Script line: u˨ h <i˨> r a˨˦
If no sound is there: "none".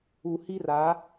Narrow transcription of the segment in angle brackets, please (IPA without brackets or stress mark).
i˦